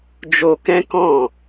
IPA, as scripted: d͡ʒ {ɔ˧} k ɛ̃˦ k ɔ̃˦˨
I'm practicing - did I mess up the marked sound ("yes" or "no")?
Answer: yes